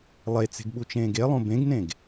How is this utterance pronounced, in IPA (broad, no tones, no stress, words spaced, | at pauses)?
lˠet͡se̤ɡɓut͡ʃẽːɡ elˠõ bẽɡnẽɡ